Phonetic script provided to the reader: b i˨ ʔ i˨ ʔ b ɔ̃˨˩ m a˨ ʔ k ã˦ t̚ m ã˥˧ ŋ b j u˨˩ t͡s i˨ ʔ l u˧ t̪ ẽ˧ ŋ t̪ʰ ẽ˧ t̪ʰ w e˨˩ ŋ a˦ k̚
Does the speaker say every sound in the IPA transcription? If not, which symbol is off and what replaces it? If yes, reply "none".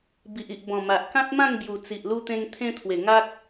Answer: none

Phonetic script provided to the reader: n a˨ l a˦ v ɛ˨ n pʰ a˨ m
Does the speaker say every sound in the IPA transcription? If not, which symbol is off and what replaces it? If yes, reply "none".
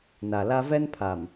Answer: ɛ˨ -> ɛ˦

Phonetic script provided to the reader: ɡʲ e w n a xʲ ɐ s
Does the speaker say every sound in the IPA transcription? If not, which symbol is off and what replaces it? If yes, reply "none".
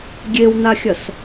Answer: none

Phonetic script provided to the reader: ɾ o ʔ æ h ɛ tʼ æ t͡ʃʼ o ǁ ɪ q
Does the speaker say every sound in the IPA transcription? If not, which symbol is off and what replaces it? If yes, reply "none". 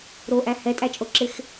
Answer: q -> x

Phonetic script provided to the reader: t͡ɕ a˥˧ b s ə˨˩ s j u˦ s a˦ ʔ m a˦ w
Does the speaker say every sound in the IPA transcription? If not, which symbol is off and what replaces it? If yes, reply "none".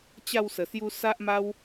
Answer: b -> w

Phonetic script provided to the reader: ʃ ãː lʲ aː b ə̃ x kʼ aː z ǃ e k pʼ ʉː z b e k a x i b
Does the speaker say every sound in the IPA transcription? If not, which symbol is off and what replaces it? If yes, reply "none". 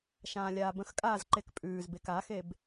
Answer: i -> e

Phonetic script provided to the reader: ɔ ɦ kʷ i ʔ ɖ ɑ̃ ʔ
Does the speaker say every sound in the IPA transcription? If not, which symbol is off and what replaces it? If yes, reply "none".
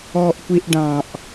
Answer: ɦ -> ʔ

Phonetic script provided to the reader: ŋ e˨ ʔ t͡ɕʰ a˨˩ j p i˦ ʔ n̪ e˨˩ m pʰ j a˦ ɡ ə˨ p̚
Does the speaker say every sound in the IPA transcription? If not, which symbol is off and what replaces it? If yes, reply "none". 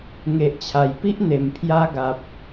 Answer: ə˨ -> a˨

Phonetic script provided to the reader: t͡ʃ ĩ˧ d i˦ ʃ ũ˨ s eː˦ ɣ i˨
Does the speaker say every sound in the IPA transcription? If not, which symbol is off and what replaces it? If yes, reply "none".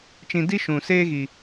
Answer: none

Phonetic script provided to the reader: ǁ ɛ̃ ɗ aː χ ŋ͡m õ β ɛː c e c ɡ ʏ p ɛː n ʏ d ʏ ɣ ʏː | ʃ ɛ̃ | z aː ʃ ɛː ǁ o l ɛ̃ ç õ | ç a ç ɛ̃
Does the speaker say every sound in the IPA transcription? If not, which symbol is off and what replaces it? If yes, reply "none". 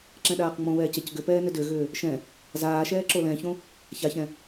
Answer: χ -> q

